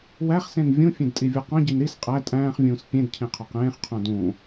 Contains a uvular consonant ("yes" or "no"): yes